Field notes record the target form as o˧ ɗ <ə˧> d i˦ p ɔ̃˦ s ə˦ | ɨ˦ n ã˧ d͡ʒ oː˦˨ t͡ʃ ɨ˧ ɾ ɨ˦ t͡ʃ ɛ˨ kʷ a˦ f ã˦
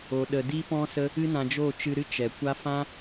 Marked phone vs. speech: correct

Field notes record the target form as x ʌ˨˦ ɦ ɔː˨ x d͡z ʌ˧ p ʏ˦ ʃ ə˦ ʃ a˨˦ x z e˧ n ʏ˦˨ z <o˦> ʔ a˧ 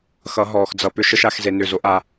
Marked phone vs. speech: correct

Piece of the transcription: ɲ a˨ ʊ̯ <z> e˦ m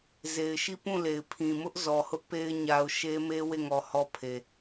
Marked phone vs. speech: incorrect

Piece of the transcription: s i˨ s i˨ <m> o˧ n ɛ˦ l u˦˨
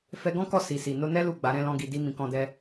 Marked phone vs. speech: incorrect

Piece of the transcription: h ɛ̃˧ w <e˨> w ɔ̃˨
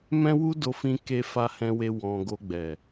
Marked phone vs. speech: incorrect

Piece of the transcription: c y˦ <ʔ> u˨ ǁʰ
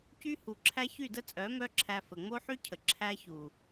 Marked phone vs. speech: incorrect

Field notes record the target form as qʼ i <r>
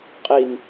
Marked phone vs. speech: incorrect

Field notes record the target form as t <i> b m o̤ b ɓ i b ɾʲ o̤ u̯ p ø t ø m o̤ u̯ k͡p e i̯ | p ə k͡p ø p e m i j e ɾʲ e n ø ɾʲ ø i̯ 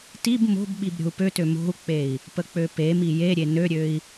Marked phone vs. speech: correct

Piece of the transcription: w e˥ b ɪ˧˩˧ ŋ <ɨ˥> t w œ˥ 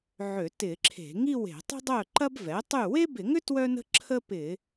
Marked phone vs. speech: incorrect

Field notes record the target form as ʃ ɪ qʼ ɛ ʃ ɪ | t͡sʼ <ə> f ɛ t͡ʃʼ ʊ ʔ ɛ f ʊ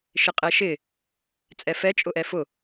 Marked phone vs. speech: incorrect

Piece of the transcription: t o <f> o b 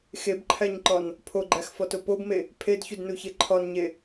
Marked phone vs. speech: incorrect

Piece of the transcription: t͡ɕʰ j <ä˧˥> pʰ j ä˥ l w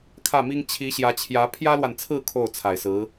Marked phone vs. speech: correct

